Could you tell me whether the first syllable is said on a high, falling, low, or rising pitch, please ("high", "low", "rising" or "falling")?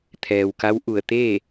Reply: low